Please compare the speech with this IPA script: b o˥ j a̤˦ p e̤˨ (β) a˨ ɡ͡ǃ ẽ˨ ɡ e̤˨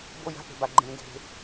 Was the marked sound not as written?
yes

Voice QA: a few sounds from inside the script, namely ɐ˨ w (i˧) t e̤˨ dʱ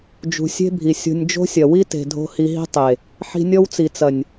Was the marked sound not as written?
yes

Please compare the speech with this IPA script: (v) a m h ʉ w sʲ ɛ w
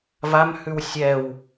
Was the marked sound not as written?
no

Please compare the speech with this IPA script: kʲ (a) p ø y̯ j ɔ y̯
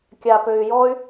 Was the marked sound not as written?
no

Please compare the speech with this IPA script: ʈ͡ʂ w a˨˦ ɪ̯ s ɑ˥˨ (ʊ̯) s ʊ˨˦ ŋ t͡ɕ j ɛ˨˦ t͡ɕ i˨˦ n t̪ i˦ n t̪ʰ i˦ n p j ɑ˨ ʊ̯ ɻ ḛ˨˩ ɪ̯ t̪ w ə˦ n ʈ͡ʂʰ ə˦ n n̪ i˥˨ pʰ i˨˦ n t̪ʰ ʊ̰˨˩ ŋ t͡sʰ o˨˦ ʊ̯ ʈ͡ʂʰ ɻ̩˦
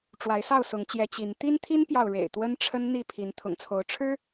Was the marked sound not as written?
no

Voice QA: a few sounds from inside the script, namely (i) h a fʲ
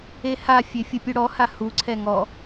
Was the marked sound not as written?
yes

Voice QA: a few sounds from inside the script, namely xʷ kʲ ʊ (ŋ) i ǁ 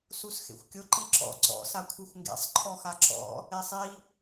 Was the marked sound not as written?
yes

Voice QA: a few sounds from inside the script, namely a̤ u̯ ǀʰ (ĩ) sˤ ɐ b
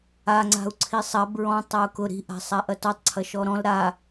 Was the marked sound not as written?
yes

